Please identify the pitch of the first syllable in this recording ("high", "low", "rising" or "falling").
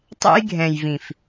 high